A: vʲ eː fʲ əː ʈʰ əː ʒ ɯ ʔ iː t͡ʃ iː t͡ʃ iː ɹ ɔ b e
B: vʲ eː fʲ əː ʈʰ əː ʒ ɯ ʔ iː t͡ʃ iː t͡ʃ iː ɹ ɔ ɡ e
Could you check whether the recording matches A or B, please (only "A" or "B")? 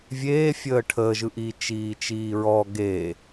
B